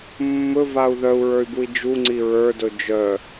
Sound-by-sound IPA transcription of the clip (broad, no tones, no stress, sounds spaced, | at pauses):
mː ɵ v a u̯ ð œ u̯ ɹ ə˞ y̯ b u i̯ d͡ʒ u ŋ͡ǀ i ɹ ə˞ d ɵ d͡ʒ œ